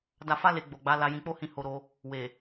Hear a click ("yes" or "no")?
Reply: no